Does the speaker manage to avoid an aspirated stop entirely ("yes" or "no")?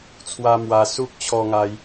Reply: no